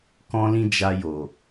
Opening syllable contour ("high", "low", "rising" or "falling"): high